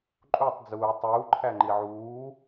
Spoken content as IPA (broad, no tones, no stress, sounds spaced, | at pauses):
ǃʼ u tˤ d͡z uː tˤ uː ǃʰ æ ŋ͡ǃ i ʕ uː